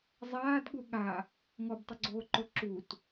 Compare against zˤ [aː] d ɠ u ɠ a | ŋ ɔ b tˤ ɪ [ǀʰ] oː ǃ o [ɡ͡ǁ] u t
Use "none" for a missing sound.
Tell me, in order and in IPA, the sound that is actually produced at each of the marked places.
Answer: aː, ɡ͡ǀ, ǁ

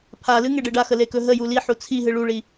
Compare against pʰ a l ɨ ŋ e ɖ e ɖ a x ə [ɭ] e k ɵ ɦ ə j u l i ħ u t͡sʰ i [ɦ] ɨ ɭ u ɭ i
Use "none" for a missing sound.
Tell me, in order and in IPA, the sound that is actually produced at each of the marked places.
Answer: l, ɦ

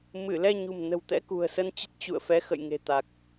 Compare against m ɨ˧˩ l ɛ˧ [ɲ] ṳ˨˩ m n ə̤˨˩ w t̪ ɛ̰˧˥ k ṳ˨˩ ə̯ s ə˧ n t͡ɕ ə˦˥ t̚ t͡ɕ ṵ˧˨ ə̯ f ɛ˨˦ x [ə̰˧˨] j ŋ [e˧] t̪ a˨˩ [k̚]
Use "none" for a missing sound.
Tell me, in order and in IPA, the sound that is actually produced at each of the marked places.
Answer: ɲ, ə̰˧˨, e̤˨˩, k̚

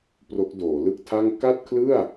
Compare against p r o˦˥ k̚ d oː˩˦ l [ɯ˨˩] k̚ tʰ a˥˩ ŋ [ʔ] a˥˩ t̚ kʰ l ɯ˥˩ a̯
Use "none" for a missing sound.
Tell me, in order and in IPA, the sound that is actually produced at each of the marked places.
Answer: ɯ˥˩, k

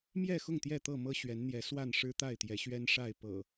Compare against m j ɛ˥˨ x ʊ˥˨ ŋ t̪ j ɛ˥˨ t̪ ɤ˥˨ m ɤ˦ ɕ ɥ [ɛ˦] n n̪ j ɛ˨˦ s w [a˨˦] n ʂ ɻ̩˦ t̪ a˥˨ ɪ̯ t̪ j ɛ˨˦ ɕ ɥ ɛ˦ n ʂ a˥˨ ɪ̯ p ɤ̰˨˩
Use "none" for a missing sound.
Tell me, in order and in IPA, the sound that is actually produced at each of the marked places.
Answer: ɛ˨˦, a˥˨

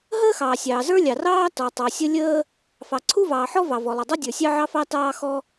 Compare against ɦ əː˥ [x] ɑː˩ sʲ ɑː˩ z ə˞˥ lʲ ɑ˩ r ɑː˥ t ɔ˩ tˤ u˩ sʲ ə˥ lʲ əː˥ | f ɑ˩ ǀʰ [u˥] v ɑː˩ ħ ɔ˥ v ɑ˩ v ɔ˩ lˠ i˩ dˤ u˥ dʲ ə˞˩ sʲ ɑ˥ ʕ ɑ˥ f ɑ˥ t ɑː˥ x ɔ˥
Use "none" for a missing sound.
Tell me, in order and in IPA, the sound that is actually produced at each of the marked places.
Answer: x, u˥

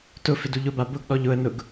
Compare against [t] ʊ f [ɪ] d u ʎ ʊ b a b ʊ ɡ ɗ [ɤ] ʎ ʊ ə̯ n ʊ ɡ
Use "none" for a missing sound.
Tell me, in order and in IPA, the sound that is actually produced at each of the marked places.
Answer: t, ɪ, ɔ

